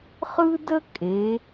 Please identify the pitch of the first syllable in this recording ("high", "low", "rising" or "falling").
high